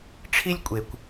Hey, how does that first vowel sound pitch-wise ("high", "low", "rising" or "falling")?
high